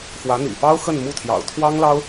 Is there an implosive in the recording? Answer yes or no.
no